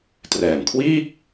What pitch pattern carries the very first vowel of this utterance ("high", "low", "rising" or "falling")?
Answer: low